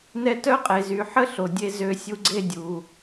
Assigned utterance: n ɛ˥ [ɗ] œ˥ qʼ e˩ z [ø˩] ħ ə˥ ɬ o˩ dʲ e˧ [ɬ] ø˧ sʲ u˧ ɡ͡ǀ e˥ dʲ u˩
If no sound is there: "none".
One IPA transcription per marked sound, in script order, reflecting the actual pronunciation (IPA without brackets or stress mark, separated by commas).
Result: t, y˩, z